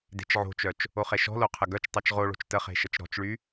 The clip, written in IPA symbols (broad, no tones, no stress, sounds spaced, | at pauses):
d e̤ t͡ʃ ʕ o̤ t͡ʃ œ t͡ʃ | o χ e ʃ ɔ̤ l o qʰ ə ɡ œ t͡ʃ tˤ œ t͡ʃ ʁ o ɭ o̤ t͡ʃ t ə χ e̤ ʃ ə t͡ʃ ɾ ɔ̤ t͡ʃ ɭ y